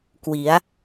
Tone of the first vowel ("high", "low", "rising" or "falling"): rising